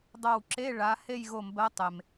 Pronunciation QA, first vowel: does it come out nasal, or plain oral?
oral